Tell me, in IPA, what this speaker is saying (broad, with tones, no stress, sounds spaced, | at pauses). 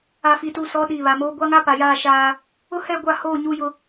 a˨ f i˨ t u˨ s ɔ˨˦ ɗ iː˨ β a˨ m oː˦ ɡʷ a˦ ŋ a˦ p a˨ j aː˦˨ ʃ aː˦ | ʊ˦ h ɛ˦˨ ɡʷ a˦˨ h oː˦˨ ɲ u˦ j ʊ˦